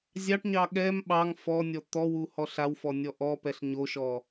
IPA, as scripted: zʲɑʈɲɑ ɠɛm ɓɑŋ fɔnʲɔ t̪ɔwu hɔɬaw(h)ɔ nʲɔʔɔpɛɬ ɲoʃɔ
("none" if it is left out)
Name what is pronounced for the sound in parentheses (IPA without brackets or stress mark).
f